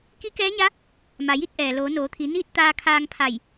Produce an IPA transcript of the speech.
k i˧˥ k ɛː˧˥ ɲ a˧˥ | m a˩ j i˧˥ t̚ ʔ ɛː˩ l oː˩˧ n oː˩˧ t̪ʰ i˩˧ n iː˥˨ t̚ t̪ aː˧ kʰ aː˧ ŋ pʰ a˧˩ j

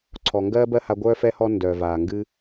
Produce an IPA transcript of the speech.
ǀʰ ɔ˨ ŋ ɡ ɜː˦ b ɜ˦ h a˧ ɡʷ œː˧ f ɛ˧ h ɔ˧ n d œː˨ v aː˨ ŋ ɡ ɨ˦

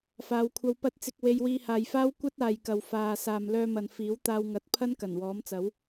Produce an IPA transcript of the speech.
f aː˨˧ w kʷʰ ɐ˧ w p ɐ˨˥ t̚ t͡s ɪ˨ k̚ w e˧ j w iː˧ h aː˨˧ j f aː˥ w kʷ ɐ˥ t̚ aː˨ j k ɐ˨ w f aː˨ s aː˨ m l œː˧ m ɐ˨ n f iː˨˥ w t̪ aː˧ w ŋ ɐ˨˥ t̚ pʰ ɐ˥ n k ɐ˨˩ n w ɔː˨˥ m t͡s ɐ˨˥ w

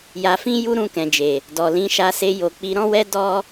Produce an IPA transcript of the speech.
j a˧ f ĩ˦ j u˦ ɾ ũ˧ k ɛ̃˨ d͡ʒ e˨ | d ɔ˨ l ĩ˨˦ ʃ a˧ s e˧ j o˨ k͡p i˨˦ ɾ ɔ̃˦ w ɛ˦ d ɔ˦

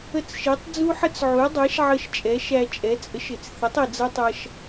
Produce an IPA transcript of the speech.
ə˥˩ t͡s ʃ i˩˥ tˤ d͡z u˥ ħ ə˥ t͡s ʕ u˩˥ dˤ æ˩˥ ʃ ʕ ə˧ ʃ t͡ʃʼ ɛ˩˥ ʃ æ˧ t͡ʃʼ ɛ˩˥ t͡sʼ ə˩˥ ʃ ɪ˩ t͡s θ ɪ˩˥ tˤ i˩ d͡z ʌ˥ tˤ ʌ˧ ʃ

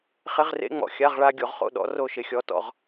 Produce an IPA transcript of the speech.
χ ɪ˧˥˧ ʁ r ḛ˧˥˧ ŋ͡m ɔ̰˨˩ xʲ a˧˥˧ ʁ ɭ a˧˥˧ ɡʲ o˩˧ ʁ χ o̰˦˨ ɗ ɔ̰˨˥ r o˦˨ ʃ ɪ˩˧ xʲ ɔ˩˧ t ɔ̰˨˩ ʁ

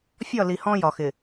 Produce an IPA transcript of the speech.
fʲ ɒ˦˨ l i˨ h ɔ̃˦ j ɒ˨ x ɪ˨

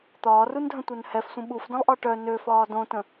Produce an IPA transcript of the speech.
t̪ ɒː r u n dʱ ə̃ tʷ œ n h ɛ f sʷ ə̃ ɓ u f d ə̃ lˠ ʔ ɒ ʈ œ n ø f ɒː d õ t ə̃

